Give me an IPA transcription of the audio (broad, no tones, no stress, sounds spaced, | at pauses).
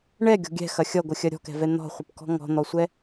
ɳ ɛ ɡʲ ɔ̤ ɡʲ ɛ̤ x ɐ xʲ ʌ ɡʷ ə xʲ ɐ ɾʲ ɔ̤ k ɛ̤ v ɛ n̪ ɔ̤ χʷ ə p k ɔ̤ ŋ ɔ̤ n̪ ɔ sʷ ɛ